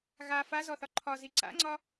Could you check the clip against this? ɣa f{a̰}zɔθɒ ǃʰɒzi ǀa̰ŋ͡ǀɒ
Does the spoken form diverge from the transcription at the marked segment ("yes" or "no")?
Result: yes